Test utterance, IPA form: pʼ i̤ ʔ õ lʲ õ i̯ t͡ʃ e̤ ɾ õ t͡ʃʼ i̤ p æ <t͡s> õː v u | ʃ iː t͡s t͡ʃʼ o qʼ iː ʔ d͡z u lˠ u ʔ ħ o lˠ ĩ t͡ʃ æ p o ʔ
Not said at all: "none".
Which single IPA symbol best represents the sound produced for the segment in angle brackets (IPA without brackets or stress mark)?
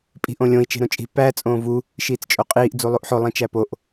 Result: t͡sʼ